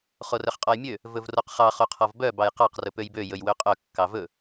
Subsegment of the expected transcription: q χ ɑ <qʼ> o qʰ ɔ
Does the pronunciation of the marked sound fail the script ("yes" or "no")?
yes